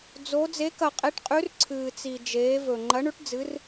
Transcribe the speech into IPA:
d͡zo˧˥ d͡ze˧˥kɐ˧qʼe˧˥ʈqʼʉ˧˥r ǀʰɨː˧t͡si˧ d͡ʒeː˧˥vɵ˧ ŋ͡ǃɐ˧˥ɳʉ˧˥ʈ d͡zɨ˧˥r

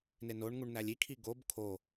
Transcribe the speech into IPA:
nenoɳŋuɳ nælʲikʰi ɡob kʰo

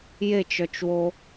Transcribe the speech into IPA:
jet͡ʃœt͡ʃwo

